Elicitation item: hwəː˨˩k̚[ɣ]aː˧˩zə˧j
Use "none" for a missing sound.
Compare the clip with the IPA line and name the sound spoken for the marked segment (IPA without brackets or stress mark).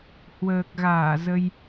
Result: ɣ